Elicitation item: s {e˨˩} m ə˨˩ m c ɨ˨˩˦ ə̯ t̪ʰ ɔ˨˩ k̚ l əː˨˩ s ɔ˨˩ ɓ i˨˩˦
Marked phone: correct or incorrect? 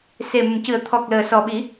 correct